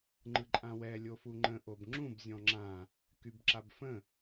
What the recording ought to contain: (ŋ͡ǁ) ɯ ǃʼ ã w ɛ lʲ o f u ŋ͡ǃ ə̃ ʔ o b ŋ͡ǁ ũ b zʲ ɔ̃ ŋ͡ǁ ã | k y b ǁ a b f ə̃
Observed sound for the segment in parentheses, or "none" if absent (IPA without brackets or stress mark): ŋ͡ǃ